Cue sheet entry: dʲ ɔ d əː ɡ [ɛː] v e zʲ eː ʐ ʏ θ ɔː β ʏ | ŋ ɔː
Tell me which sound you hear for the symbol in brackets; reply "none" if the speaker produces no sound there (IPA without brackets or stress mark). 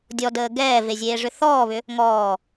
ɛː